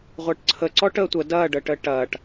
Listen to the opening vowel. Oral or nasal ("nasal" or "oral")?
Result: oral